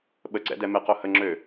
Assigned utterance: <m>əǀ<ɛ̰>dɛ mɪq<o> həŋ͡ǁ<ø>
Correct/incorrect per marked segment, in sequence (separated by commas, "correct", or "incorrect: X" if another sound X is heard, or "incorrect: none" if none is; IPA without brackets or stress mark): incorrect: ɓ, correct, correct, correct